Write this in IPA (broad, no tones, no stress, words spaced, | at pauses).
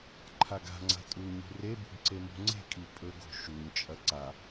ǃʰaɡa̤ŋ͡ǀa̤ tʼu ɲṳrebṳɡ ǀemṳŋ͡ǀe̤kʼi pʼɵɡo̤ ʃuɲt͡ʃʼɐ ǀa